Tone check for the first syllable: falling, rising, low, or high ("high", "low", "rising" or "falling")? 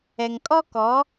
low